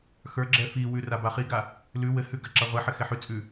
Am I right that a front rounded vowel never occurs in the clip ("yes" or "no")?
yes